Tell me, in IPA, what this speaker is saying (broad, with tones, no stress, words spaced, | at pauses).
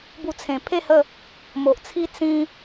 bu˧t͡sʰẽ˨˩ pʰe˥˧hə˥˧ | mo˨ʔt͡sʰi˦ t͡sĩ˦